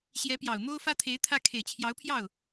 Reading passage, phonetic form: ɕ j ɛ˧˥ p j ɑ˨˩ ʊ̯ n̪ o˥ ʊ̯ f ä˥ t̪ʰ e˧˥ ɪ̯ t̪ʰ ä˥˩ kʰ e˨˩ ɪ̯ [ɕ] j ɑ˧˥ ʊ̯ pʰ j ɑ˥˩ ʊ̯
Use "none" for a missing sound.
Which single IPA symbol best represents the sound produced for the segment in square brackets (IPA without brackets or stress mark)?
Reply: t͡ɕʰ